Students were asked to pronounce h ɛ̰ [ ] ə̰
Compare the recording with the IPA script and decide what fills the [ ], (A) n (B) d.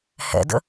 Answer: B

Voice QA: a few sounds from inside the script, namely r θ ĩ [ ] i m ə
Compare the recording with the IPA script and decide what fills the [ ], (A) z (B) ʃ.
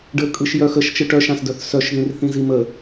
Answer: A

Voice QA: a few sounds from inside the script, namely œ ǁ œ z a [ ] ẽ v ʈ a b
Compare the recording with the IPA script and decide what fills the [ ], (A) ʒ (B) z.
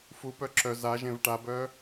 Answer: A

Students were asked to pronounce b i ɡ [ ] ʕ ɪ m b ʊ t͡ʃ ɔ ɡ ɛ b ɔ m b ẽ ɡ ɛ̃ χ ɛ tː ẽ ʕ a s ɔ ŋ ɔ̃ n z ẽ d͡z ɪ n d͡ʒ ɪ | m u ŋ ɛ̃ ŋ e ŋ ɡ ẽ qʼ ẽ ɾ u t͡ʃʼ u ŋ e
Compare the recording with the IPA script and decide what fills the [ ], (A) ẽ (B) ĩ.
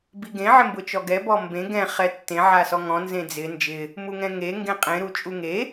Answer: A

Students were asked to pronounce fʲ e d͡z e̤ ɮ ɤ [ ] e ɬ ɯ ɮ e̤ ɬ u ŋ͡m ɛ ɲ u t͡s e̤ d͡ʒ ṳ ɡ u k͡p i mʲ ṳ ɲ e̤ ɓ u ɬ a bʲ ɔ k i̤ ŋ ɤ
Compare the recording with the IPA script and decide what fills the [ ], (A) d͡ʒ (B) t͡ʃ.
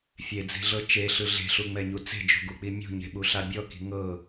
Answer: B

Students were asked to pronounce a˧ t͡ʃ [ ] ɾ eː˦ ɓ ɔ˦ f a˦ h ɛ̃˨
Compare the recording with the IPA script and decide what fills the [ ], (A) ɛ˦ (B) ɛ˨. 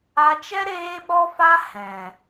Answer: A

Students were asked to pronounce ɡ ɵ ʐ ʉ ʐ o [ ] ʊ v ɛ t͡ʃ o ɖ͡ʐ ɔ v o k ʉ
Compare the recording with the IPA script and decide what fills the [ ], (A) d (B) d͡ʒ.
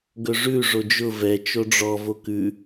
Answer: B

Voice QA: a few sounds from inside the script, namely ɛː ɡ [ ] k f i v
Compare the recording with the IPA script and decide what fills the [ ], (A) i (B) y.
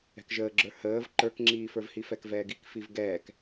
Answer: A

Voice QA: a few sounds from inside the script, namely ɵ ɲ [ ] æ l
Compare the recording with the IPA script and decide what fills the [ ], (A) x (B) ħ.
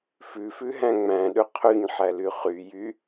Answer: B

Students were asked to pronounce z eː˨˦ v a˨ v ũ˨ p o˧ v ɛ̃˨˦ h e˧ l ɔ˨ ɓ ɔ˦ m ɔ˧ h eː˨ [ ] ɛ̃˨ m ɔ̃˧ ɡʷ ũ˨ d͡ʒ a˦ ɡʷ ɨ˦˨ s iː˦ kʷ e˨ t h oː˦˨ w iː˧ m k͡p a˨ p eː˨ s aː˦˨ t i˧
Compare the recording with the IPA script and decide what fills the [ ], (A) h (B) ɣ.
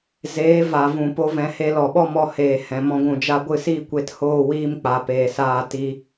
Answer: A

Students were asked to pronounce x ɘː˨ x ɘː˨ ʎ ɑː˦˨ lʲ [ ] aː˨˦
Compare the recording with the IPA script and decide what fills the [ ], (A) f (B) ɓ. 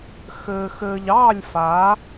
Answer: A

